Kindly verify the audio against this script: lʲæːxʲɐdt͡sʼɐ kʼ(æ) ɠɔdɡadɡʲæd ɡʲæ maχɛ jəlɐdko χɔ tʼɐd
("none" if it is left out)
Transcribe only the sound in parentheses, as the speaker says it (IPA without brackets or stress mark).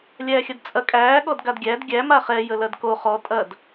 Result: æː